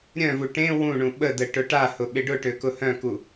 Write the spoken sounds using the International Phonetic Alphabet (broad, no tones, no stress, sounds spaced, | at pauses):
ɾʲ œ̃ v u ʈ ẽ w ũ ɳ ũ ɓ ə d ə ʈ ʊ ʈ a h ʊ ɓ ɪ ɖ ʊ ʈ ø k ʊ h œ̃ k u